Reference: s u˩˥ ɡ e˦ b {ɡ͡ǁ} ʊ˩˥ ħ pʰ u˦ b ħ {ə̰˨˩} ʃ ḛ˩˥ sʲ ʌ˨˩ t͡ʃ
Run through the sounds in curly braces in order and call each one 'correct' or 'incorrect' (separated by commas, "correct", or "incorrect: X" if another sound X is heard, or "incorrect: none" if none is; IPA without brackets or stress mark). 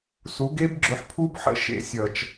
correct, correct